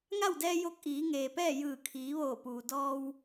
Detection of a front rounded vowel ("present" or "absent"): absent